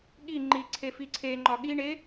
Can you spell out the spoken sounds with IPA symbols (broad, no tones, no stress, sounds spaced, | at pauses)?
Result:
ɠ i ŋ͡ǃ i ǀʰ e f i ǀʰ e ŋ͡ǃ ɒ ɠ i ɳ e